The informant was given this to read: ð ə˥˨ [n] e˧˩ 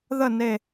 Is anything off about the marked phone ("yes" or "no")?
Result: no